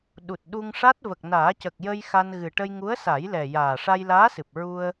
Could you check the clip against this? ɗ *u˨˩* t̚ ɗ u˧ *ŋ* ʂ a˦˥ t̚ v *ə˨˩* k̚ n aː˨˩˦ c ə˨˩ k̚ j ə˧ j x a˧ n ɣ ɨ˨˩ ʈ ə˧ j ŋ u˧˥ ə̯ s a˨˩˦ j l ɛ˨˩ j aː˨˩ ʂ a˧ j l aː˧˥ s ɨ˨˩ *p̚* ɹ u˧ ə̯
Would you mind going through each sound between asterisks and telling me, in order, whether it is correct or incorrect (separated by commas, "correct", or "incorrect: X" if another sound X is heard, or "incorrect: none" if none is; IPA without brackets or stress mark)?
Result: correct, correct, correct, correct